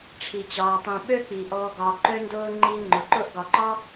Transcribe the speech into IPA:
ʈ͡ʂʰ i˩ t͡ɕ ɒː˩ tˤ ĩ˩ ɓ ø˦ k͡p i˩ ʔ ɔː˨ ɡ ɒː˨ ǃ ø˦ n d ʊː˦ ŋ͡ǃ i˦ ŋ͡ǃ ʊ˨ ǃ ʊ˦ ʔ ɡ ɒ˨ ǃ ɒ˥

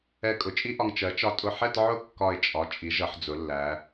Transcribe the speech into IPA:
ɛ˧˩ kʼ ʊ˩˧ t͡ʃʼ i˥ ʔ ɒ˧ ŋ t͡ʃ ɜ˩˧ t͡ʃ ɒ˧ tʼ ʊ˧˩ ħ ɛ˥˧ t ʕ ʊ˥˧ kː ɒ˧˩ ɪ̯ t͡ʃʼ ɒ˩˧ t͡ʃʼ i˩˧ ʒ ʌ˩˧ ħ d͡z ʊ˩˧ lː æ˩˧

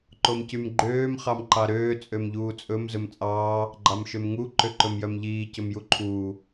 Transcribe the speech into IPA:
ǃ o m c y m ɡ͡ǃ øː m χ ɑ m ǃ ɑ ɾ øː t͡sʼ ø m ʎ uː t͡sʼ ɵ m z ɵ m t͡sʼ ɑː | ɡ͡ǃ ɑ m ʃ ø m ŋ u ǃ ø ǃ ɵ m j œ m ʎ iː c ɵ m j u ǃʰ uː

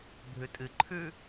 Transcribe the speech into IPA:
bʱ ʉ tʼ ɨ ǃʰ ʉ

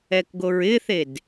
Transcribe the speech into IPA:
ɛ k ɡ o ɹ ɪ θ e d

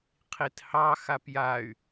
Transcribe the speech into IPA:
qʰ i t h ɑ x a p j a y̯

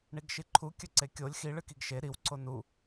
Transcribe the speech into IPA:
ɳ i ɡ ʃ i ǃʰ u kʲ ɵ ǀ e kʲ o lʲ x i ɭ ɨ k i ɡ ʃ e ɾ i w ǀ o n u

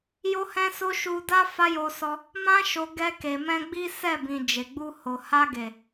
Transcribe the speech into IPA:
j o˦ h ɛ̃˦ s o˦ ʃ u˧ d a˦ f a˦ j o˧ s ɔ˧ | m ã˦ ʃ o˧ ɡ ɛ˧ k e˨ m ɛ̃˧ ɡ͡b i˦ s ɛ˦˨ b ĩ˨ d͡ʒ e˨ ɡ͡b u˧ h o˨ h a˧ ɡ e˨

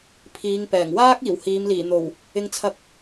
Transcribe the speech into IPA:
pʰ iː˨˧ ŋ p ɛː˨˩ ŋ w aː˥ k̚ iː˨˩ w h iː˨˧ m l iː˨˩ n̪ o˨˩ w | ɪ˧ ŋ t͡sʰ ɐ˧ k̚

